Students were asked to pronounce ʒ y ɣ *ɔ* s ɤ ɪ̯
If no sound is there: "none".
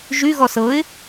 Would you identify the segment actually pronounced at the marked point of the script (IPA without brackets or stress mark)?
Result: ɔ